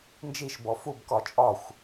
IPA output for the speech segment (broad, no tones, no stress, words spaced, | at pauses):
nd͡ʒiʃ bɔfubkɒ t͡ʃʼɒxʷ